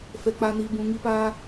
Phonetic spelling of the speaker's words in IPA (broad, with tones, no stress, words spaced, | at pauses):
fɛ˧k͡pa˧niː˧ bũ˧ŋi˦paː˦